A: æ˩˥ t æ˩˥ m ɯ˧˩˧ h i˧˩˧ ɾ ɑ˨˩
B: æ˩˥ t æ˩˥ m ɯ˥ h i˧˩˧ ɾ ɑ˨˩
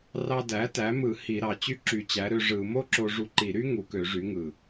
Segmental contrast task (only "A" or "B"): A